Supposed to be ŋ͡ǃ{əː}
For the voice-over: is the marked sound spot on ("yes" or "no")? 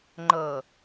yes